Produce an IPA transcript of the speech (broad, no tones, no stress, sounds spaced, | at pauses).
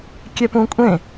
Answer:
kʲ ɛ p ũ kʷʼ ẽ